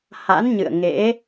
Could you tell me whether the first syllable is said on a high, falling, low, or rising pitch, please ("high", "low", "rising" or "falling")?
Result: rising